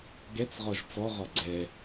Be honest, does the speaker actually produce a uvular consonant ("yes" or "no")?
yes